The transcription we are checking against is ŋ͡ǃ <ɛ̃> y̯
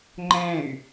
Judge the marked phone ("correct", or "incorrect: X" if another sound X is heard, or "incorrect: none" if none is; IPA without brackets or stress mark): correct